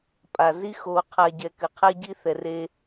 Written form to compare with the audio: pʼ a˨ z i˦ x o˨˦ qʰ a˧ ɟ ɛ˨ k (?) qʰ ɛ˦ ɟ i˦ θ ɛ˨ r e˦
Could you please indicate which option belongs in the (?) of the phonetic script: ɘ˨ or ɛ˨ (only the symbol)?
ɘ˨